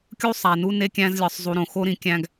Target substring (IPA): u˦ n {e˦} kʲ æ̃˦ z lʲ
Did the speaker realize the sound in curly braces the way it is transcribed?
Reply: yes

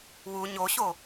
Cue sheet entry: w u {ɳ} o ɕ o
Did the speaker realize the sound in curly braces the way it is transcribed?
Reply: no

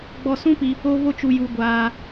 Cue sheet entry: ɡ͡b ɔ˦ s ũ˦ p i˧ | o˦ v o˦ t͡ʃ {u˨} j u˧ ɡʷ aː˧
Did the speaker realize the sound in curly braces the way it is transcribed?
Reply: no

